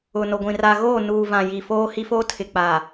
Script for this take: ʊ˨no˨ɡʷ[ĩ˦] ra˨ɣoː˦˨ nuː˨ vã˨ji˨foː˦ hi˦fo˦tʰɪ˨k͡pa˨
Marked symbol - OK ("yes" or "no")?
no